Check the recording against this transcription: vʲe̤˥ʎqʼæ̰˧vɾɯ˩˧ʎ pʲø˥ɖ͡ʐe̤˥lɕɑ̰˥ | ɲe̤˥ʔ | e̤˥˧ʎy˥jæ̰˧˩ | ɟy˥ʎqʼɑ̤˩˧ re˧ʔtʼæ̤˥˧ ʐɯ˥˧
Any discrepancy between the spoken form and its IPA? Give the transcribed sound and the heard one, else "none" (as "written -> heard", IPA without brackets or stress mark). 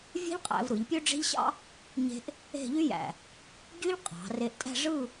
l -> ʎ